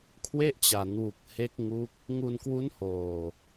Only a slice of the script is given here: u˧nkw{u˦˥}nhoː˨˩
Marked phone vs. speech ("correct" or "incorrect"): correct